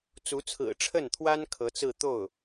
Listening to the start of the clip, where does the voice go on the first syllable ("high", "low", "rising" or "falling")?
rising